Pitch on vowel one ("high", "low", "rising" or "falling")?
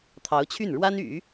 rising